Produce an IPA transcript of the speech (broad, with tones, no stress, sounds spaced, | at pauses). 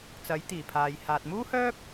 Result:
t͡s ɐ˨˥ j t̪ iː˨˩ pʰ aː˨ j h aː˨ t̚ m uː˥ h œː˥ p̚